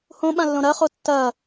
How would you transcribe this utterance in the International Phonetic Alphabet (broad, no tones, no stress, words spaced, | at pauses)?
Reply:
hõɓãlːõ ɾɐχo tːɐ